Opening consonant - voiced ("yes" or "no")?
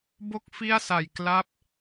yes